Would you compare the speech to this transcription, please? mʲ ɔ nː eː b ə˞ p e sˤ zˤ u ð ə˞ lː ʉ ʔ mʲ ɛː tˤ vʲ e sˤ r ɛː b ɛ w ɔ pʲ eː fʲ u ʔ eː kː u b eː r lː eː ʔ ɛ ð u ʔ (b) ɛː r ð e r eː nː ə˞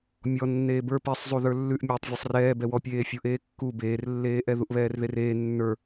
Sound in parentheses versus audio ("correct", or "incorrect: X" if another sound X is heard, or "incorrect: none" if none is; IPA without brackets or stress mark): incorrect: β